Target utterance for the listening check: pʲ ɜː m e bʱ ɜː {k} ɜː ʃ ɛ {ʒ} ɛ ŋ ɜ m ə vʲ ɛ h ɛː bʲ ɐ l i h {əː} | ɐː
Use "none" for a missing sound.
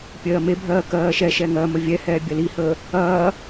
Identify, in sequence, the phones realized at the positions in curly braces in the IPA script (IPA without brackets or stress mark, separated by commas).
k, ʃ, əː